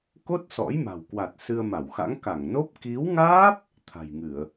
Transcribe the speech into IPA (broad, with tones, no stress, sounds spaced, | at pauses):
k o˦˥ t̚ s ɔ̰˧˥ j m a̤˨˩ w k w a˨˩ t̚ s ɨ˧ ə̯ m a˧˩ w x a̰˧˥ ŋ k a˧˩ ŋ n o˦˥ p̚ k i˨˦ w ŋ aː˦˥ p̚ | t̪ʰ a̤˨˩ j ŋ ɨ˧˩˨ ə̯